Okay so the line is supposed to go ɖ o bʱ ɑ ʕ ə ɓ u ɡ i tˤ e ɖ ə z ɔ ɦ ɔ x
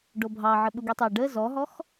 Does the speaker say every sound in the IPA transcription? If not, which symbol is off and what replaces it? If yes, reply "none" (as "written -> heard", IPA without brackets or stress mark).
none